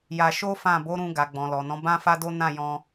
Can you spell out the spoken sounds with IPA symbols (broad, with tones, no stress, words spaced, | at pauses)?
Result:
ja˧ʃo˦fã˦˨ bo˨˦ɾũ˧ɡa˨ ɡ͡bɔ̃˨lɔ˨nɔ̃˨˦ bã˦fa˦do˦ nã˦˨ jɔ̃˧